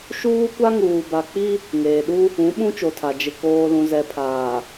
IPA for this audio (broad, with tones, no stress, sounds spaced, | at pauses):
ʃ uː˦ kʷ a˦ ŋ uː˨ b a˨ k͡p i˦ | ŋ eː˨ ɗ u˦ | ũ˨˦ ɓ ũ˦ t͡ʃ o˨ tʰ a˨ d͡ʒ ɪ˨ k oː˨ l ũ˨ z ɛ˨ pʰ aː˨